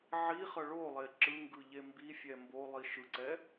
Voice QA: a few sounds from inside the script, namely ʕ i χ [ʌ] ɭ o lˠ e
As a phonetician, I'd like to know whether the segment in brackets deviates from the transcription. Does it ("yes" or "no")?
no